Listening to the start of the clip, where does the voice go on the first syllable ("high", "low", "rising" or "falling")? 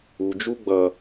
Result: low